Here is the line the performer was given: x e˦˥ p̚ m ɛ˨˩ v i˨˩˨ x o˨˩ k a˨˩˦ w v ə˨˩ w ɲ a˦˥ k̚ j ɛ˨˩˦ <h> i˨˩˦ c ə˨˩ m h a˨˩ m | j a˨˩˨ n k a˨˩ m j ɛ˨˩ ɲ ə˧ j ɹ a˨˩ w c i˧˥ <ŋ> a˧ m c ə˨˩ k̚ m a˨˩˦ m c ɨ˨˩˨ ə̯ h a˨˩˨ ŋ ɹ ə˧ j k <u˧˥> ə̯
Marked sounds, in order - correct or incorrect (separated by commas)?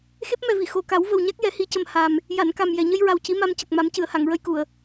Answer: correct, incorrect, incorrect